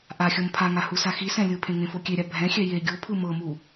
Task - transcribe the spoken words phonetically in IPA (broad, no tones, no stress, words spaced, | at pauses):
ʔaxʲɤm pʰaŋa husaxisɛ̃ lʲɯpʰẽ ŋẽfokʲeɾʲa bʱɛ̃xʲɛ je ɡʲopʰɯ mɤmu